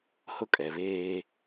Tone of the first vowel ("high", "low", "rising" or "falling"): high